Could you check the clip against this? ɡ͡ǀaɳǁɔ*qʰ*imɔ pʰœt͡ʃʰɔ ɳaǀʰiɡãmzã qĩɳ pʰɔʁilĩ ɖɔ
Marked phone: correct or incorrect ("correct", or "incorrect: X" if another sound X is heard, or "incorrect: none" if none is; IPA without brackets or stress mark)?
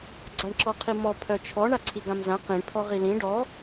correct